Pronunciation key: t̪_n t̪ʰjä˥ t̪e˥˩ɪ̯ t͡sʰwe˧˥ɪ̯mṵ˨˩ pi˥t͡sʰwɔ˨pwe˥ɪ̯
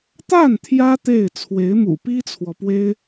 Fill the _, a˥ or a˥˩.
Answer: a˥˩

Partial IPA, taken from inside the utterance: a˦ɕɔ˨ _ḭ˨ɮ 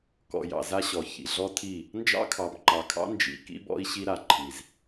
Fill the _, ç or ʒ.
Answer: ç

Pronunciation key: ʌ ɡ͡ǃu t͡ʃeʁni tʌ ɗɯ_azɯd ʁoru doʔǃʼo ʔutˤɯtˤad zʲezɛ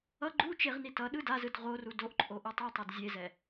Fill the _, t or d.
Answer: d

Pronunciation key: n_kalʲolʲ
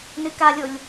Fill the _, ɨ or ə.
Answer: ɨ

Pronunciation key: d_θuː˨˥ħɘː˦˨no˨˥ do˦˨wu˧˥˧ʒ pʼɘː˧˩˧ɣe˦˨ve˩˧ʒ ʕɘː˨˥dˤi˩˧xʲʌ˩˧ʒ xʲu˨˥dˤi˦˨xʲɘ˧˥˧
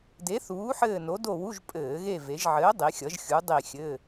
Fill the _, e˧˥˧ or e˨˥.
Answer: e˨˥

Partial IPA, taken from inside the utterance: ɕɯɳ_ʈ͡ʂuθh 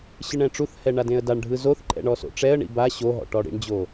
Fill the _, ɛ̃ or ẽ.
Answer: ɛ̃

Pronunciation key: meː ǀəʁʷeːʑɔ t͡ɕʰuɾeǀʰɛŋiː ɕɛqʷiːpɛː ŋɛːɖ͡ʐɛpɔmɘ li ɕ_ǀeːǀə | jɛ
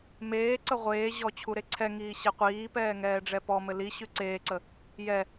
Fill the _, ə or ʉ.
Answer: ʉ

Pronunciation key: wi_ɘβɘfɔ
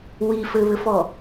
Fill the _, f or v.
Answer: f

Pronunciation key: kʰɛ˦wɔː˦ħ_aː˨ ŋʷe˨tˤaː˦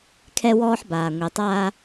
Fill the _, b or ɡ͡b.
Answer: b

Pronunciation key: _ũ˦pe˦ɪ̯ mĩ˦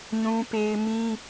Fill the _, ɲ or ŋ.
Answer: ɲ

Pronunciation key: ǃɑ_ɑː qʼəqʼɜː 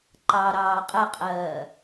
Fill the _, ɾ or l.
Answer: ɾ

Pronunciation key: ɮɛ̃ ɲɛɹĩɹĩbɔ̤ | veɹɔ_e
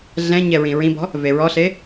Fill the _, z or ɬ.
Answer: ɬ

